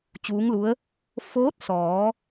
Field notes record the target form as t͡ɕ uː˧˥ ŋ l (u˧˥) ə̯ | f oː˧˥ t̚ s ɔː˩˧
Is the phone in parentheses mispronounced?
no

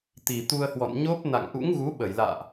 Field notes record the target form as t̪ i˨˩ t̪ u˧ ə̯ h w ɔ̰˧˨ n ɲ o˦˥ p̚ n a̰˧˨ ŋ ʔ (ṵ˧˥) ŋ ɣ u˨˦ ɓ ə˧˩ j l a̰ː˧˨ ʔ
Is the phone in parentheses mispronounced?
no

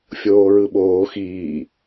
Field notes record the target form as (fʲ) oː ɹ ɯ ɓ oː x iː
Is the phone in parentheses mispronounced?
no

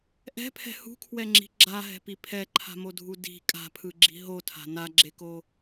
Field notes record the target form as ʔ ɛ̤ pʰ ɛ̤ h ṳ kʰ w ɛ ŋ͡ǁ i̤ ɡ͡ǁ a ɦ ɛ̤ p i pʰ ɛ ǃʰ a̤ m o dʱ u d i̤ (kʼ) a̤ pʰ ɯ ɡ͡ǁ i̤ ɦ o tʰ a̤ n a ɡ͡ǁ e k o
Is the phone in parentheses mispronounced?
no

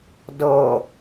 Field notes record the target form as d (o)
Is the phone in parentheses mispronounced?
yes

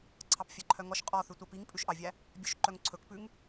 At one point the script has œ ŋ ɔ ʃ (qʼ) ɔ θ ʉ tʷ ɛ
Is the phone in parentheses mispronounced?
no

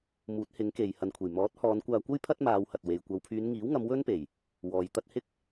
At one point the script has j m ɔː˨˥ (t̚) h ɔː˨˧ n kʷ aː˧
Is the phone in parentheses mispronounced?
no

